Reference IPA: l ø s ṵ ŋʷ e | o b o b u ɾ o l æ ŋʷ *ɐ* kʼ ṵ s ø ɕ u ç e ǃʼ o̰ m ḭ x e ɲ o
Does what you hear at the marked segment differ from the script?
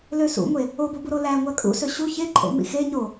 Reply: yes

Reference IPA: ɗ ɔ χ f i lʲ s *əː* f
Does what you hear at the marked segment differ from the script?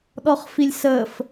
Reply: no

